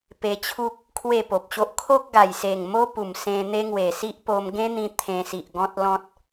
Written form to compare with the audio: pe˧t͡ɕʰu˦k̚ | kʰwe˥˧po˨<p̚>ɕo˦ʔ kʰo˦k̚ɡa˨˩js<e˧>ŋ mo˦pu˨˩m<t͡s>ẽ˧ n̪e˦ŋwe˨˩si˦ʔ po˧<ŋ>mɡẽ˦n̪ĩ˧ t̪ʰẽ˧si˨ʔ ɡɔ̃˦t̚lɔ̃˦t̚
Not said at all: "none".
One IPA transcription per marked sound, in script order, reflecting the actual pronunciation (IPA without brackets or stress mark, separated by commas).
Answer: p̚, e˨˩, s, none